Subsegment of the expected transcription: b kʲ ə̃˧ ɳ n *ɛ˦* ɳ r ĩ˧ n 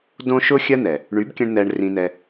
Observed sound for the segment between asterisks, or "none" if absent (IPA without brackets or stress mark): ɛ˧